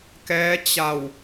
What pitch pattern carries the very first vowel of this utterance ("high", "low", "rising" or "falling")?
rising